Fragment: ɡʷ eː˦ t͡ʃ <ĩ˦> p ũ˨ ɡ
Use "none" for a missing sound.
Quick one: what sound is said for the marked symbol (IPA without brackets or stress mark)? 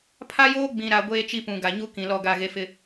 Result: i˦